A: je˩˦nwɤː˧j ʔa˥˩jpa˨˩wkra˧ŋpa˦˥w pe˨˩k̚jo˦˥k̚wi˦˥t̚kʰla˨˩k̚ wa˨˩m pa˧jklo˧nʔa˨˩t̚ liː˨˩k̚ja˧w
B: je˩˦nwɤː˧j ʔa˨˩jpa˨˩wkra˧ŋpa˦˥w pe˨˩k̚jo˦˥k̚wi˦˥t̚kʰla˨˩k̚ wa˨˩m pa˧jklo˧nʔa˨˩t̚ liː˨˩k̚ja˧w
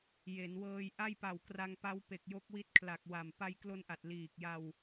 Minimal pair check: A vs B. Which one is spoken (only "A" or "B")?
A